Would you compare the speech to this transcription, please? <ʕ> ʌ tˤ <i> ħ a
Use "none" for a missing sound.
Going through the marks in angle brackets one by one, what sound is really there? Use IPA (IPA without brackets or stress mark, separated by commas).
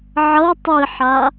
ʕ, i